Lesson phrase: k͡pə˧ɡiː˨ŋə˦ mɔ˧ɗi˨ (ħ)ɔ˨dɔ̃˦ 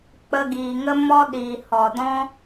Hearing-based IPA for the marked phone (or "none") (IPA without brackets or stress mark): h